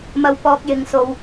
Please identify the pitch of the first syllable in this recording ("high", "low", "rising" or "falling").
low